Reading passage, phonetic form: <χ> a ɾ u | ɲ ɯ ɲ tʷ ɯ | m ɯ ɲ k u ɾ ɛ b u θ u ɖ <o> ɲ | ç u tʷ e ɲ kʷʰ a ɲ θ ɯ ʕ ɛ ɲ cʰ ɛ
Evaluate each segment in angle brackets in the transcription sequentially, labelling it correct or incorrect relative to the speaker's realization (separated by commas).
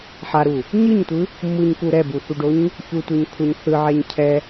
incorrect, correct